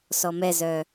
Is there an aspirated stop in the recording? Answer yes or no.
no